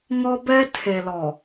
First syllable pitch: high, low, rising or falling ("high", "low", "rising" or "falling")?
high